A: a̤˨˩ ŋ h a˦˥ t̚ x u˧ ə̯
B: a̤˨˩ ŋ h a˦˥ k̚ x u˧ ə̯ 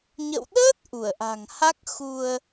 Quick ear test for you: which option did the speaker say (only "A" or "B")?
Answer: B